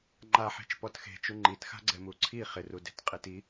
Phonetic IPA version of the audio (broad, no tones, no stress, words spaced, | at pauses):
ŋ͡ǃaħe̤t͡ʃ pɔtxe̤t͡ʃu ŋ͡ǃitxa̤ɡ͡ǀɛm uǀʰi χɪru de̤tqʼiti